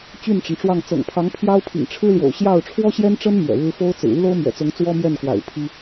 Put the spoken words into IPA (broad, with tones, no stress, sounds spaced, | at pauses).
t͡ɕ y˥˩ n ʈ͡ʂ ə˩ n ʈ͡ʂ w ɑ˥˩ ŋ t͡s ɤ̰˨˩ ŋ pʰ ɑ˧˥ ŋ pʰ j ɑ˥ ʊ̯ pʰ ḭ˨˩ ŋ ʈ͡ʂʰ ɻ̩˥ l j o̰˨˩ ʊ̯ ɕ j ɑ˥˩ ʊ̯ ʈ͡ʂʰ w ɔ˥ ɕ j ɛ˥ n ʈ͡ʂ ə˥ n m ɥ ɛ̰˨˩ ɻ ɻ̩˥ f o˥ ʊ̯ t͡s ɹ̩˨˩ y˥ l o˥ ʊ̯ m ɥ ɛ̰˨˩ t͡s ʊ˧˥ ŋ t͡s w ɔ˥ m j ɛ˥˩ n k w a̰˨˩ ɪ̯ pʰ i˥